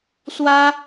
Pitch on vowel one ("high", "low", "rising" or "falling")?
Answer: high